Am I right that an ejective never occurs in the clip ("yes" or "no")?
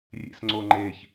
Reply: yes